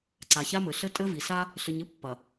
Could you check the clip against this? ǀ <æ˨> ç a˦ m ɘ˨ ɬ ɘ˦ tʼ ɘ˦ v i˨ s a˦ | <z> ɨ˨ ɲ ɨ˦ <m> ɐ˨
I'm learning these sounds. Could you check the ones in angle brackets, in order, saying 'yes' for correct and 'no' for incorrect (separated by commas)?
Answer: no, no, no